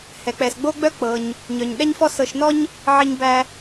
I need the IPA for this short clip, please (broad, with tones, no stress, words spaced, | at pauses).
hɛ˩k͡pɛ˩sɡ͡bo˥ɡ͡bœ˥ k͡pɤ˩ɲ | ɲœ˩ɲɗɛ˥ɲfɔ˥ sɤ˧ʃnɔ˥ɲ | ʕi˧ɲbæ˧